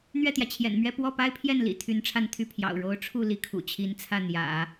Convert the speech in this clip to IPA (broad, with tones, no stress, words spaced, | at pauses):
n̪ɥɛ˥˩t̪jä˩t͡ɕʰjɛ̰˨˩nmɥɛ˥˧ pwɔ˥˩pa˥ɪ̯pʰjɛ˥˩nlḭ˨˩ t̪ʰy˧˥nʈ͡ʂʰa˥˧nt̪ʰy˥˩pʰjɑ̰˨˩ʊ̯ ɻo˧˥ʊ̯ʈ͡ʂʰu˥˩ li˧˥kʰṵ˨˩t͡ɕʰi˧˥nt͡sʰä˥˩ n̪jä̰˨˩˦